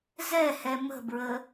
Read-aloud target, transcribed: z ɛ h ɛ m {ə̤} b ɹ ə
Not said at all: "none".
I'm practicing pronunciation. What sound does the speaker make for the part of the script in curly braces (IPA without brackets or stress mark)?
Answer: ə̤